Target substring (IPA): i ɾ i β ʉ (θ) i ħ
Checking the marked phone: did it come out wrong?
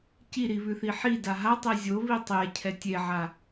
no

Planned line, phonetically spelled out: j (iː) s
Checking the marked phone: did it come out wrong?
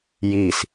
yes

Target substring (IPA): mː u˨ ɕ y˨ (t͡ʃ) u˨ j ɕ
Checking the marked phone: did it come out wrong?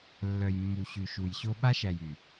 yes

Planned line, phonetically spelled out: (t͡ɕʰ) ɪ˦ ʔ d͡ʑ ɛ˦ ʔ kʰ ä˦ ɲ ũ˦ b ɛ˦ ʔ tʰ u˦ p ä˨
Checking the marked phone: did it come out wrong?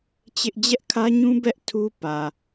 yes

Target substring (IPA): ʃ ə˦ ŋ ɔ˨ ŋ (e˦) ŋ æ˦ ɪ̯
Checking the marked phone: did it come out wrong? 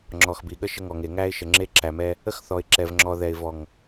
yes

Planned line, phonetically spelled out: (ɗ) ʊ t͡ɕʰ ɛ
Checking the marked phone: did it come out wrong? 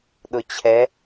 no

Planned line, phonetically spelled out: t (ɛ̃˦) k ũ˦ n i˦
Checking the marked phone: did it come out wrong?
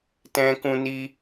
no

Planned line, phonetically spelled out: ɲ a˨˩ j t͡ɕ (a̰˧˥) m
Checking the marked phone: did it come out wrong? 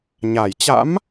no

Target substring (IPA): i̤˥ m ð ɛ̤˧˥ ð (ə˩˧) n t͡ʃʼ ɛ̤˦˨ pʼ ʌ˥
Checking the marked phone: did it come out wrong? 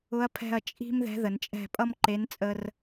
no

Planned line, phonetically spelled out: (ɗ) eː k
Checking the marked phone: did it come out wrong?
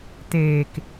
yes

